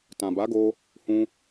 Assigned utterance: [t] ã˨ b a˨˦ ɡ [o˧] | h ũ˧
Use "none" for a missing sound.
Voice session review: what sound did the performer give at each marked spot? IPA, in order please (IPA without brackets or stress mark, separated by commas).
t, o˧